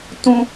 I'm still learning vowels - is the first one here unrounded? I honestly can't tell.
no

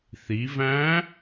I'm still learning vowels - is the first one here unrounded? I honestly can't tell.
yes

